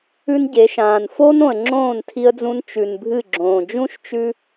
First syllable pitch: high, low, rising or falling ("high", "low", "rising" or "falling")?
high